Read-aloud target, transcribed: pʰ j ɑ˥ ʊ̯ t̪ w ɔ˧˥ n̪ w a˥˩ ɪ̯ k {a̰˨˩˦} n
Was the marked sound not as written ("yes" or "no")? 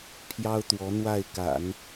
no